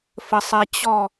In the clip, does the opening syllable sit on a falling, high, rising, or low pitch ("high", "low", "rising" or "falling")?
low